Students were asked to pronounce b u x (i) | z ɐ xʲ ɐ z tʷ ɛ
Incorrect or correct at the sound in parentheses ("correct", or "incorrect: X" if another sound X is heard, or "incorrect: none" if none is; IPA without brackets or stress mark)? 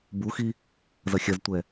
correct